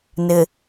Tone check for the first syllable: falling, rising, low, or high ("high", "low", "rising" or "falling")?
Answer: low